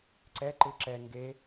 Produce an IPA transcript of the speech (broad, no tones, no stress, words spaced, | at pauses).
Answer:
ǀɛǃɯ ǁɛ ŋɡe